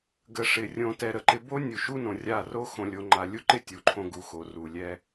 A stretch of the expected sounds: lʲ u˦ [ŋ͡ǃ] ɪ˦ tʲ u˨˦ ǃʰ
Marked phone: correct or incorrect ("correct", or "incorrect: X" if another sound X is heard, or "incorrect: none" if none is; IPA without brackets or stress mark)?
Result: incorrect: ǃ